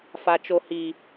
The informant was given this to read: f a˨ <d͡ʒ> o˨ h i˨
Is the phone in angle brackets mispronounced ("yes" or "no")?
yes